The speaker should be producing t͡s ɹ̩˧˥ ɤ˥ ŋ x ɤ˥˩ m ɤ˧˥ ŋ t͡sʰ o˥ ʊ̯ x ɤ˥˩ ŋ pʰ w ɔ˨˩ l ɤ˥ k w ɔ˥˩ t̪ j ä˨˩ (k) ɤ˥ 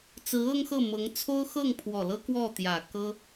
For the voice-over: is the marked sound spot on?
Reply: yes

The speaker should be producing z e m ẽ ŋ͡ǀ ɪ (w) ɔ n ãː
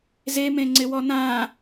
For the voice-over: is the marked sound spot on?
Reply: yes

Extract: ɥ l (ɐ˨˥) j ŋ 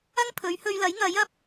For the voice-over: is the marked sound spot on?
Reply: yes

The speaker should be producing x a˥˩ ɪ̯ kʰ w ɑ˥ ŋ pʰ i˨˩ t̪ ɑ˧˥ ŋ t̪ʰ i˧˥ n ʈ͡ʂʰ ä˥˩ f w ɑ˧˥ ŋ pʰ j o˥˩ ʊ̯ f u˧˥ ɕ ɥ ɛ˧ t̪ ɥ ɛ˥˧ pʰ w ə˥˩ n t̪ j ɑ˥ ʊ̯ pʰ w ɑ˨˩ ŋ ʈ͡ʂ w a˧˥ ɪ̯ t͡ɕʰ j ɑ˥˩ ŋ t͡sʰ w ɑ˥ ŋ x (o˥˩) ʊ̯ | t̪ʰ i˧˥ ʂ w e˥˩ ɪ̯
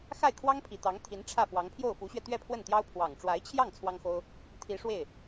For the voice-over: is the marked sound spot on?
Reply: no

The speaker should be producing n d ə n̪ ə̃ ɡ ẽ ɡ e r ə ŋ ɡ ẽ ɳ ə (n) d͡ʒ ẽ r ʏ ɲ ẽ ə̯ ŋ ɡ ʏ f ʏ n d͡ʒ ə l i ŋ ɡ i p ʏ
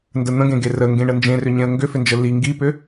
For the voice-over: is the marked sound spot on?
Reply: yes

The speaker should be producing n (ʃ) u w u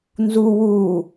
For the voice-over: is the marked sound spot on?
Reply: no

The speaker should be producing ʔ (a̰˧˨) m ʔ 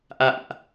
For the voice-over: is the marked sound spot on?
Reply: yes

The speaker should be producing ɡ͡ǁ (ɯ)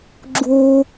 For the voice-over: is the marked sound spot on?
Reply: no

